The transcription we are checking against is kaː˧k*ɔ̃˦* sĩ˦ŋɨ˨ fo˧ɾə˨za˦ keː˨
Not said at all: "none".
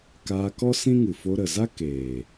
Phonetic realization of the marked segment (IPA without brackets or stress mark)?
ɔ˦